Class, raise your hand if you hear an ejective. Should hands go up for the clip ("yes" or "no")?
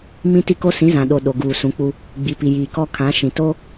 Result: no